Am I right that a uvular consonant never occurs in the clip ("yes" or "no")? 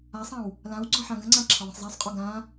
no